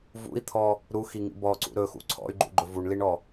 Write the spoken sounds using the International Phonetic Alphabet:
v ṵ i̯ t̪ʰ ɔ | ɾ u x i ŋ ḭ b ɔ ǀ ṵ ɾ ɵ x ṵ ǀʰ ɔ̰ y̯ ɡ͡ǃ ṵ ɡ͡ǃ ɵ v u ɳ l i ɳ ɔ

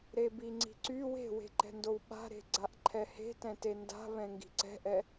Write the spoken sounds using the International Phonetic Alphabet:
ɾ e b i ŋ͡ǀ i̤ ǀ y w e̤ w e̤ ǃ ɛ̤ n d o w ɓ a̤ ɾ e̤ ɡ͡ǀ a ʔ ǃʰ ɛ h e̤ t ɛ̃ t e n d a̤ β ɛ̃ ŋ ɡ i̤ ǀ ɛ̤ ʔ ɛ

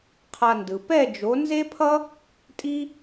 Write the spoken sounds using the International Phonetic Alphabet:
qʰ a˧ n d ɯ˨ p ɛ˦˨ d͡ʒ o˨˦ n z e˦ pʰ ʌ˦ | tʼ i˦

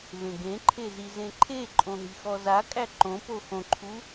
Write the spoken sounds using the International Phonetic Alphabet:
v ẽ ɡ ẽ ǃʰ e z i z ẽ ǃʰ e ǃʼ õ ɦ i̤ x ɔ z a kʼ æ ǃ õ p o x õ ǃʰ u

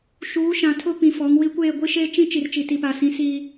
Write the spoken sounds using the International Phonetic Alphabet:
ʃ uː˨˦ ʃ ã˨ tʰ ʊ˦ p ĩ˨ f ɔ˨˦ ŋ w i˦ kʷ eː˦˨ ɡʷ i˦ ʃ eː˦ t͡ʃ ĩ˦ t͡ʃ i˨ r t͡ʃ i˨ t i˨ p a˨ s ĩ˨˦ s iː˦

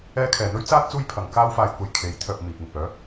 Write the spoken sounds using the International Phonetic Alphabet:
ɛː˥ kʰ ɛː˨ n̪ ɵ˥ ɥ t͡s aː˥ t̚ t͡s uː˥ j pʰ ɐ˨˧ ŋ k aː˥ w f aː˧ j kʷ ɐ˨ j kʰ e˨˥ j t̪ʰ œː˨ p̚ m iː˨ k̚ ŋ ɪ˨ k̚ œː˨˥

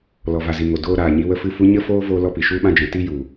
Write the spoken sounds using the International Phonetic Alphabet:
l ɔ˨ v a˨ z i˨ ŋ o˨ d oː˧ ɾ aː˨ ɲ i˧ w ə˦ f ɨ˦˨ f u˦ ɲ ə˦ f oː˦ v oː˦ l ɔ˦ p i˨ ʃ u˧ ɓ ã˧ d͡ʒ ɛ̃˨ t i˧ j u˨

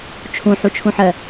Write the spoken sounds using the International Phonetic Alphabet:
t͡ʃʰ ũ ħ u t͡ʃʰ ũ ħ ɜ

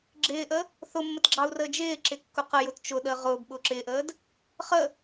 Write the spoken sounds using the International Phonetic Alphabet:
ɡ͡ǁ ɪː ʔ ə | θ ʊ mː ə t ɡ͡ǁ ɑ u̯ r əː d͡ʒ ɪː ǁ ɪ kː ʊ q ə j ʊ t t͡ʃ ʊ ɗ əː ʁ ʊː b ɓ ʊː ǁ ɪː ʔ əː d | χ ə

